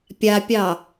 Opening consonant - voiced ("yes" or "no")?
no